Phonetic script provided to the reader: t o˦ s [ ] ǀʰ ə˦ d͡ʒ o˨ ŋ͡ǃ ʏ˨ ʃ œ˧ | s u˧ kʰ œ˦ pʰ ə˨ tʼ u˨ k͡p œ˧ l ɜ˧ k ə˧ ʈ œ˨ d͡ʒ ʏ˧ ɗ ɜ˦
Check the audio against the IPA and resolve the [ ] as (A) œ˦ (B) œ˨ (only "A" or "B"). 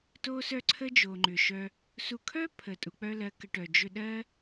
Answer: A